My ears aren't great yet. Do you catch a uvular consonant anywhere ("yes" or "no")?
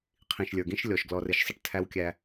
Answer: yes